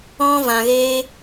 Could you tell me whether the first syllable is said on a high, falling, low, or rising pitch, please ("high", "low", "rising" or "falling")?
high